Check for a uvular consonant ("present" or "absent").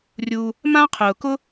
present